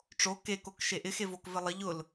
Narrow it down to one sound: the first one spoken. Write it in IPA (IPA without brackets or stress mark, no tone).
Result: ʈ͡ʂ